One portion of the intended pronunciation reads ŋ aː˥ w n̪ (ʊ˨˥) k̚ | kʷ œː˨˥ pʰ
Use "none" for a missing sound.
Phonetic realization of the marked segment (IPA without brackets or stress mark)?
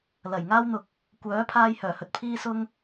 ʊ˨